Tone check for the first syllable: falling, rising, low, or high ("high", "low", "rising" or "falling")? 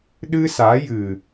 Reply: high